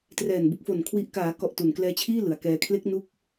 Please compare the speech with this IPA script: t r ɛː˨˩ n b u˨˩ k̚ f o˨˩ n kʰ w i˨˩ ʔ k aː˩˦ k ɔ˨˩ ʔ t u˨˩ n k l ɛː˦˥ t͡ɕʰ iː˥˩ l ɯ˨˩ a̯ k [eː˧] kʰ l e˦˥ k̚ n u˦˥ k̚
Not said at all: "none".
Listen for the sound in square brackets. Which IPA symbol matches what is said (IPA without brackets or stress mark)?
ɛː˧